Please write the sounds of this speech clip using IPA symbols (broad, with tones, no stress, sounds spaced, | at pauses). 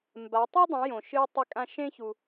m b a˨˦ tˤ i˦ dˤ ũ˨˦ j õ˧ ʃ ɨː˦ tˤ e˦ kʼ ã˦ ʃ ẽ˦ ç u˧